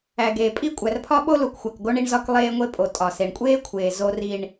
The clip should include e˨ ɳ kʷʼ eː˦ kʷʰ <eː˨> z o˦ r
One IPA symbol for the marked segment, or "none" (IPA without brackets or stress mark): eː˨